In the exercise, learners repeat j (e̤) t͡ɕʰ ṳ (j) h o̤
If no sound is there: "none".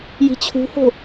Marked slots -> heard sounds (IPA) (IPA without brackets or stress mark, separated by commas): i̤, none